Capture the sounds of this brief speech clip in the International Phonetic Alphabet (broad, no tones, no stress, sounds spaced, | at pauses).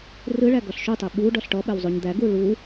r ɯ ɭ æ ɡ ɔ ɬ ʃ u tˤ ɛ ɓ u ɖ ɔ ɬ ʈ ɔ ɓ ɛ w zˤ u ɲ d̪ æ ɡ u ɭ u